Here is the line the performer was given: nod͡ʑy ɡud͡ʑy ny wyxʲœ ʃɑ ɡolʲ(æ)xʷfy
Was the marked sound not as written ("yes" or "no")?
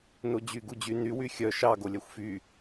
no